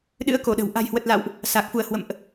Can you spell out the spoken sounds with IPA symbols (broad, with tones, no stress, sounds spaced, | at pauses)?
ɗ ɨ̰˧˥ ə̯ k o˧˩ ɗ ə̤˨˩ w ʔ a̤˨˩ j h w ə˨˩ t̚ l a̰˧˨ w ʔ | s a˨˩ k̚ f u˧˩ ə̯ h w ə̰˧˨ m ʔ